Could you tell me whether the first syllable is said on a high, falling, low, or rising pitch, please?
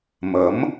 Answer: rising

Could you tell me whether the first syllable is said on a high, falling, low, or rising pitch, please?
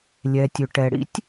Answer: low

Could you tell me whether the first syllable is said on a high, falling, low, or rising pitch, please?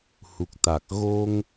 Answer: low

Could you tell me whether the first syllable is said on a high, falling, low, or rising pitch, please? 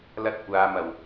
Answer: high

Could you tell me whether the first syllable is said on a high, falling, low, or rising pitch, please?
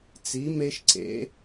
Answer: rising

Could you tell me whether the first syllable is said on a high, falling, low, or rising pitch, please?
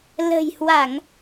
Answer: low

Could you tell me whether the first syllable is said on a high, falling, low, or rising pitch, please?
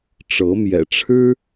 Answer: rising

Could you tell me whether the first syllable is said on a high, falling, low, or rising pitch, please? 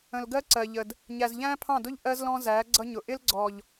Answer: low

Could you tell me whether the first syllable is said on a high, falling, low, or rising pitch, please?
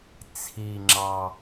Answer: low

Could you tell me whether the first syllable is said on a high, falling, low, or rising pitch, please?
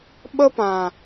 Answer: high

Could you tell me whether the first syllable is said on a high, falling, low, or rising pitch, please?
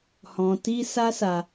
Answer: low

